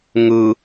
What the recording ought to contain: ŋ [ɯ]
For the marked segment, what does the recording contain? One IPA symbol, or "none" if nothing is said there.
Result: ɯ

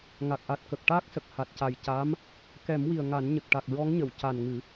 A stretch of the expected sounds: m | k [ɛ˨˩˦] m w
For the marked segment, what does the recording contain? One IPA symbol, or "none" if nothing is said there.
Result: ɛ˨˩˦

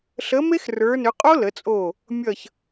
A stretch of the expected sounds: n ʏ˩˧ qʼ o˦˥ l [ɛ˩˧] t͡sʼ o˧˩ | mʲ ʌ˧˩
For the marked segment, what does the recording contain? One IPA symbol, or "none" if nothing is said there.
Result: ə˩˧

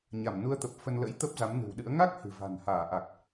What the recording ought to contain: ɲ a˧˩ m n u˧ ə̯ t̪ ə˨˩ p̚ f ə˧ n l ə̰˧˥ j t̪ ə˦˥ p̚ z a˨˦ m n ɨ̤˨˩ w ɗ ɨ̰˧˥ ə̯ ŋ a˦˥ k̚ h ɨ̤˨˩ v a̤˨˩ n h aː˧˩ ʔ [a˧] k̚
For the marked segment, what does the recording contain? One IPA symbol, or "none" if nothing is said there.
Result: a˨˩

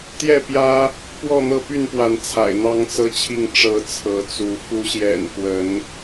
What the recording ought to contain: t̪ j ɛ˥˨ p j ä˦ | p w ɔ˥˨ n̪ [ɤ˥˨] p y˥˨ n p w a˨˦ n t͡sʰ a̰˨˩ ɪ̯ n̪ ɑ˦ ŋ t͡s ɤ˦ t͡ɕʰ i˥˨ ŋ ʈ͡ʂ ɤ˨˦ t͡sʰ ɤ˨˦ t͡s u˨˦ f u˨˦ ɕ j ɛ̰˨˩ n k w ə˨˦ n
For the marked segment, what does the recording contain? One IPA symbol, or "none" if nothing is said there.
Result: ɤ˥˨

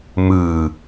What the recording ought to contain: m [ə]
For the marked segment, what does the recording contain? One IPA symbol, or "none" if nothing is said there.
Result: ɯ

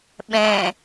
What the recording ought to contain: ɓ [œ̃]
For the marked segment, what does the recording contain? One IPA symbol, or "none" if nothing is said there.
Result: ɛ̃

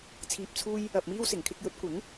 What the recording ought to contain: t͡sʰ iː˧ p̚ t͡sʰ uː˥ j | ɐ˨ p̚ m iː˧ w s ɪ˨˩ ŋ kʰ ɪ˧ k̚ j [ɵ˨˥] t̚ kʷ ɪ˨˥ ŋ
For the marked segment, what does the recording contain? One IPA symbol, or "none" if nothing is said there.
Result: ɵ˨˥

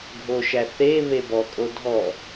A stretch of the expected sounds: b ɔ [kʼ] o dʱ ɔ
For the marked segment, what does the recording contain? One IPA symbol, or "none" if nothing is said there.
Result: kʼ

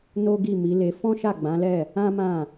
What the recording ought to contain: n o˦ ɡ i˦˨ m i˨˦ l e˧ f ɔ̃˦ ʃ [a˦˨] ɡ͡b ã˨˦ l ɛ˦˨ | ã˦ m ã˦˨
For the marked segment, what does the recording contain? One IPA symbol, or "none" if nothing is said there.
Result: a˦˨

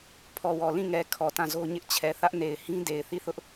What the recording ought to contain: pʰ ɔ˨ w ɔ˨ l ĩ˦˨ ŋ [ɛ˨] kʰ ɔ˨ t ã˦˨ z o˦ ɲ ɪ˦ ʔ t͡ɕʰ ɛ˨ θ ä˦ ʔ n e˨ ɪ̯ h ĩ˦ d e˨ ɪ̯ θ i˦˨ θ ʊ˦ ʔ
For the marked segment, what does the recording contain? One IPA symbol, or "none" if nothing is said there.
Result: ɛ˨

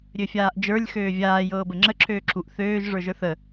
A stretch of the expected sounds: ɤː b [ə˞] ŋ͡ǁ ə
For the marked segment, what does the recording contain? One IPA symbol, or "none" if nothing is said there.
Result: ə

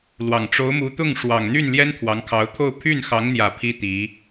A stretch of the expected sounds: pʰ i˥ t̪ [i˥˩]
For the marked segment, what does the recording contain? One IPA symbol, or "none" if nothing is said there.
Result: i˧˥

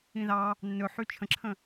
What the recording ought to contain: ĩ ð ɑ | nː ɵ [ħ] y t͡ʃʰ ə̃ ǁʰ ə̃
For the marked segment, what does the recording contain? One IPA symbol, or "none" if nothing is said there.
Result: ħ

